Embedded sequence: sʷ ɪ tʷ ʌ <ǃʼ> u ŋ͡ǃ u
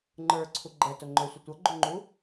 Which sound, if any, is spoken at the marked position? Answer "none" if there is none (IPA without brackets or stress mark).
ɡ͡ǃ